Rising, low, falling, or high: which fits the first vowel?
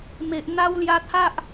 low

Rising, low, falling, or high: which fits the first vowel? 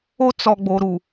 high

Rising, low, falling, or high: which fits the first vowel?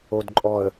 low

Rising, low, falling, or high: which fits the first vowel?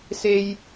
high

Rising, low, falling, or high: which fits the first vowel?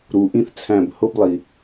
low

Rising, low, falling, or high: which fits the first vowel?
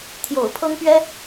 low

